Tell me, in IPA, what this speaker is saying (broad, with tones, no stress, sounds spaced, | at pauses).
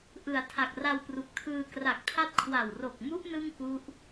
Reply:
ʔ ɯ˩˦ a̯ tʰ a˨˩ k̚ r a˧ w p r u˨˩ k̚ tʰ ɯː˧ k r a˨˩ k̚ tʰ a˦˥ t̚ kʰ w a˨˩ w r o˨˩ k̚ m u˦˥ ʔ n ɯ˥˩ ŋ k u˦˥ ʔ